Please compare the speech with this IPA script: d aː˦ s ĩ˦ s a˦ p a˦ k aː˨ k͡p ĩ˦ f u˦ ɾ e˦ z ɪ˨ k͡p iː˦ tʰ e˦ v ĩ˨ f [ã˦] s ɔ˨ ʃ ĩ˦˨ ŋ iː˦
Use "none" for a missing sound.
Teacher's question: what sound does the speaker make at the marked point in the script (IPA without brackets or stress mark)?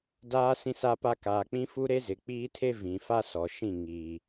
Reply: a˦